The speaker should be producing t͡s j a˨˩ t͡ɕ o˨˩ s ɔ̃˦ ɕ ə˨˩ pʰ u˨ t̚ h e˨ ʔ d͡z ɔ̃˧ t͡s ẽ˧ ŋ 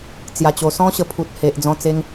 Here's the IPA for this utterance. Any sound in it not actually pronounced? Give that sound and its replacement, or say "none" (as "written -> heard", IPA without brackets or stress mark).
ẽ˧ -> e˧